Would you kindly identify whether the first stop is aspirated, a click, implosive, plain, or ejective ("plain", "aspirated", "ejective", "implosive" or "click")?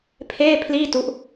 aspirated